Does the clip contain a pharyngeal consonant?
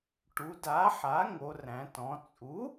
yes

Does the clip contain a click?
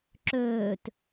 yes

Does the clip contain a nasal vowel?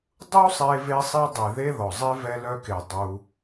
no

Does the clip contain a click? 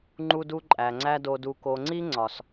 yes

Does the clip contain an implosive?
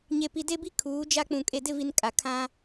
no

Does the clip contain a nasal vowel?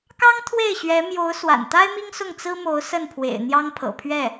no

